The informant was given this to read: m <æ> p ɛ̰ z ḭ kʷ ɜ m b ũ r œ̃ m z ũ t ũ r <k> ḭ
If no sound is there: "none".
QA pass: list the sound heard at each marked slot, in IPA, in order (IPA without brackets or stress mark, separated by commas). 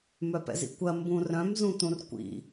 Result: œ, kʷ